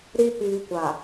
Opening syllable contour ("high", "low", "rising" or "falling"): low